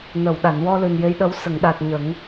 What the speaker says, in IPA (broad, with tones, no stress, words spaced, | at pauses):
nə˨˩˨w ɗa˨˩˨nwɔ˧lɨ˨˩n je˧˥jɗə˧˥w sə˨˩˨ŋɗa˨˩t̚ ɲə˨˩˦ŋ